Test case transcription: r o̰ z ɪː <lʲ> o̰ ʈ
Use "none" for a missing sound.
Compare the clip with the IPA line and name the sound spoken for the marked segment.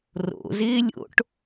lʲ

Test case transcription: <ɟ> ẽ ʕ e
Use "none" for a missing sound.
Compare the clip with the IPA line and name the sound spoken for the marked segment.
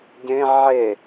ɟ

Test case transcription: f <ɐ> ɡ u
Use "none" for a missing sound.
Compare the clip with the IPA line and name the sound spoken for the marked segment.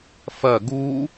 ɐ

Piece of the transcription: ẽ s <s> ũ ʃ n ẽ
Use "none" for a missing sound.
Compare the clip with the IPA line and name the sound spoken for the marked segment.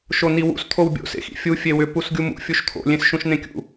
ʃ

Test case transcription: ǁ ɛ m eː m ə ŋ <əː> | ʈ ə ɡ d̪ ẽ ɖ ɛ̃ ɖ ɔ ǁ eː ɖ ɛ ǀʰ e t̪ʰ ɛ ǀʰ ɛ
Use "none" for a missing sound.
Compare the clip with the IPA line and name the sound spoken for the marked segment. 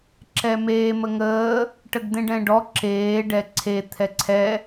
əː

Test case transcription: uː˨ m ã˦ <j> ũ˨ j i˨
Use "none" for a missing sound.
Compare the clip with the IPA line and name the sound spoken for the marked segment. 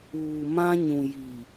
ɲ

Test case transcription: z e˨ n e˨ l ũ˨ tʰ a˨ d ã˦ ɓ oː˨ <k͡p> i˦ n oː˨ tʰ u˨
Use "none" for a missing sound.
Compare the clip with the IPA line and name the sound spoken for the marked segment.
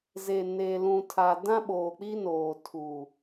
k͡p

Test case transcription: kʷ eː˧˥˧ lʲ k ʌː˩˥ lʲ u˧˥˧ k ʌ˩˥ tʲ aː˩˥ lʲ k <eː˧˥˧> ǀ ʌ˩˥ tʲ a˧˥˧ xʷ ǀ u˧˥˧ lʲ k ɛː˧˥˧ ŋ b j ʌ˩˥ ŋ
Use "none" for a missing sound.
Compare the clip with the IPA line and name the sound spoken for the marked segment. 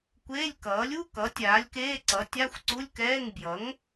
eː˧˥˧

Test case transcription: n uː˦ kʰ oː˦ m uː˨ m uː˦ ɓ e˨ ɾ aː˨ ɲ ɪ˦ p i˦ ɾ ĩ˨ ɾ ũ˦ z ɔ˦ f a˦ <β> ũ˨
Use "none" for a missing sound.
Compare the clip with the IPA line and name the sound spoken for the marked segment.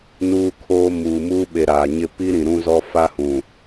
h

